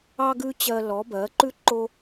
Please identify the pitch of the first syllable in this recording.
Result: high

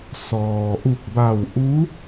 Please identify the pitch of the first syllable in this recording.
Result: low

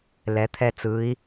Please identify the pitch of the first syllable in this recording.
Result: rising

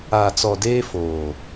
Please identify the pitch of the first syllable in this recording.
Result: low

